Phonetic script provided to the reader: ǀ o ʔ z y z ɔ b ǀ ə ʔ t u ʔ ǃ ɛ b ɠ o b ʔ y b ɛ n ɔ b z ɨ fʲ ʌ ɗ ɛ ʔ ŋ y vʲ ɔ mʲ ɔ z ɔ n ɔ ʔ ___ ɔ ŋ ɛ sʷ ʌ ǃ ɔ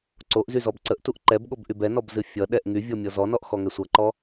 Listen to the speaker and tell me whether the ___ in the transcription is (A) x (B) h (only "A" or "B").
A